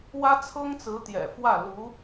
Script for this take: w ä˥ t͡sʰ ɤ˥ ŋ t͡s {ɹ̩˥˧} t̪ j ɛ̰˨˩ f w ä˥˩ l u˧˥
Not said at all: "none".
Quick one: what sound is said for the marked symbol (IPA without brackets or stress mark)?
ɹ̩˧˥